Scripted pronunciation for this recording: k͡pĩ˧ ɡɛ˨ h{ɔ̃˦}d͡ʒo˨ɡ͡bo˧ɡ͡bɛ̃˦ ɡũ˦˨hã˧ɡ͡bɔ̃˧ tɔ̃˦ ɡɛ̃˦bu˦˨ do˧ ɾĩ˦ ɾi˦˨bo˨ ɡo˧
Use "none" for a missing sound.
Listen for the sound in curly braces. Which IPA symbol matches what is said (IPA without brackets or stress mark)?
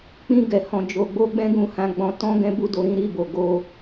ɔ̃˨